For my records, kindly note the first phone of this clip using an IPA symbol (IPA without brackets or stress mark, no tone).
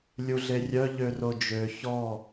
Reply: lʲ